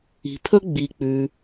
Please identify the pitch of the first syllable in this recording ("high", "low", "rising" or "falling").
low